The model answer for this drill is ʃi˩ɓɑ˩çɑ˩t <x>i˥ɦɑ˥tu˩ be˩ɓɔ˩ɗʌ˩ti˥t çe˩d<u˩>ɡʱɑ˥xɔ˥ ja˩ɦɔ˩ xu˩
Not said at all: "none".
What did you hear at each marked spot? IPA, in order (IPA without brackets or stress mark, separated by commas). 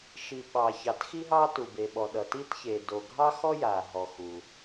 x, o˩